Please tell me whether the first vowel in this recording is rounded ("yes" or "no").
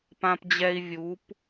no